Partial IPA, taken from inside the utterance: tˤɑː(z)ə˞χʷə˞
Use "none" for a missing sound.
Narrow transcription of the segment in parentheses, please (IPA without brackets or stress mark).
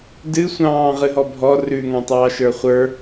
ʃ